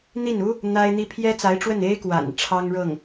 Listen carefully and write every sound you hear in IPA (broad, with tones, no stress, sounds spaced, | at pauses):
n̪ i˥˩ n u˥ | n̪ a˥ ɪ̯ n̪ i˥ pʰ j ɛ˥ t͡s a˧˥ ɪ̯ ʈ͡ʂ w ə˥˩ n e˥ ɪ̯ k w a̰˨˩ n ʈ͡ʂʰ ɑ˥ ŋ ɻ ɤ˥˩ ŋ